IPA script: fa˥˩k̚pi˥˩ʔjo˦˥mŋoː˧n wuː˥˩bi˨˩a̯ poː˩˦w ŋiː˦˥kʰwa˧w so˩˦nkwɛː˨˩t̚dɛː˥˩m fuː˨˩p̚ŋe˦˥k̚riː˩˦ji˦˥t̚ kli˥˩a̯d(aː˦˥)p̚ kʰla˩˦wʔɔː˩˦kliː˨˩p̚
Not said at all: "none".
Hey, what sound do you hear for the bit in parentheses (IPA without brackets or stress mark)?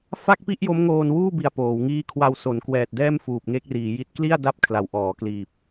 a˦˥